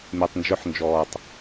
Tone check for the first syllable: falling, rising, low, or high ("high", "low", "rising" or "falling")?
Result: low